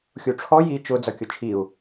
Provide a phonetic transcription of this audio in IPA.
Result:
xʲ u ʈ͡ʂʰ ɔ j i t͡ʃ ʊ d͡z ʌ kʲ ʊ t͡ʃʰ i u̯

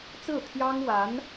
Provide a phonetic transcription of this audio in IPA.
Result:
t͡s ɹ̩˥˩ t̪ʰ j ɑ˥ ŋ w a˧˥ n

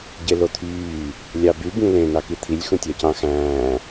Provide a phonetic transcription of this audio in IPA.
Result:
ɟ e l o t̪ʰ yː | lʲ ɑ b y b ĩ l ẽ n ɑ k i t̪ʰ i lʲ x ũ tʲ æ c ɑ̃ x æ̃ː

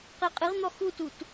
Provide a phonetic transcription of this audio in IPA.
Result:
q e qʼ ɨ ʁ n̪ ɔ x u t u t

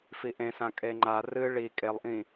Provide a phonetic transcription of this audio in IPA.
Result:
f i ʔ ẽ s ã kʼ e ŋ͡ǃ a r ɨ ɭ i kʼ e lˠ ʔ ĩ

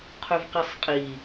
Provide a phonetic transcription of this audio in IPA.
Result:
qʰ ɵ v q e sˤ qʼ i

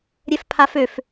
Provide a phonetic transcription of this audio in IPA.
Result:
ɾʲ ɛ f pʰ a f ø f

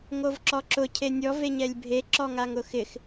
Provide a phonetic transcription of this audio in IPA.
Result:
ŋ o v ǁ ɔ ǁ ʊ cʰ e nʲ ɔ v e ɲ ɛ lʲ bʱ e ǁ ɔ ŋ a ŋ ʊ x ɪ x

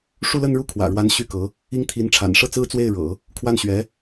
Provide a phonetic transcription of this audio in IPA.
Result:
ʂ u˥˧ l ə˥˧ n ɻ u˥˩ kʰ w ä̰˨˩ ɻ w a˧˥ n ɕ y˥˩ k ɤ˧˥ | i˥ ŋ t̪ʰ i˧˥ n ʈ͡ʂʰ a̰˨˩ n ʂ ɤ˥˩ t͡s ɹ̩˥ t͡s w e˥˩ ɪ̯ ɻ ɤ̰˨˩˦ | kʰ w a˥˩ n ɕ ɥ ɛ˧˥

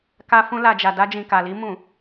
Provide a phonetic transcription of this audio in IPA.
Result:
k a˧ f ũ˧ l a˨ d͡ʒ a˨ d a˧ d͡ʒ ĩ˨ k a˨ l i˧ m ũ˨

